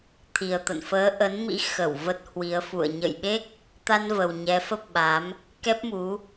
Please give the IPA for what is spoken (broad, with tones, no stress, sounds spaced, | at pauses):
t̪ʰ i˨˩ ə̯ t̪ ə̰˧˨ n f əː˨˦ ʔ ə˨˦ n m ḭ˧˥ x ə˧˩ w v ə˦˥ t̚ h w i˨˦ ə̯ f ṵ˧˨ ə̯ ɲ ə̰˧˨ j ɓ e˦˥ k̚ | t̪ a˧ n v ə˨˩ w ɲ ɛ˨˦ f ə˦˥ p̚ ɓ a˨˦ m | k ɛ˦˥ p̚ m u˨˦